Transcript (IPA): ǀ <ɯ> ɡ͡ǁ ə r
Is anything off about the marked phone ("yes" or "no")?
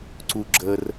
yes